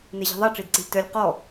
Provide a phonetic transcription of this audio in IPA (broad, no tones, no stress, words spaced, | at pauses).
neʑi̤ðˤɛ ʈ͡ʂidǀi̤lʲtœlʲ qɔ